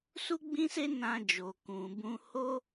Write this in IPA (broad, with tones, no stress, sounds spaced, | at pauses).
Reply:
s u˦ ɡ͡b ĩ˦ s e˦ n ã˧ d͡ʒ o˨ k ũ˨ b ũ˧ h o˦